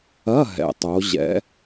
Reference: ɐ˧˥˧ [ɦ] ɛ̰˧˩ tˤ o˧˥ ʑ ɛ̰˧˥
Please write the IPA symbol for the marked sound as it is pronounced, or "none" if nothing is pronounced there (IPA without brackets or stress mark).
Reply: ɦ